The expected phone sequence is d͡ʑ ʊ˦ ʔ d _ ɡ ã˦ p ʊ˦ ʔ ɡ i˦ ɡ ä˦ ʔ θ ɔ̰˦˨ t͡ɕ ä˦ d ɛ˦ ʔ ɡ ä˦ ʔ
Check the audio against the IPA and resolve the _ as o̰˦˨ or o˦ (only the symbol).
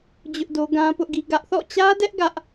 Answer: o˦